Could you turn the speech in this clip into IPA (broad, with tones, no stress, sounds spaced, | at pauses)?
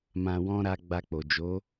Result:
m ã˨ w ɔ̃˧ ɾ a˧ ɡ͡b a˧ k͡p o˨ d͡ʒ o˨˦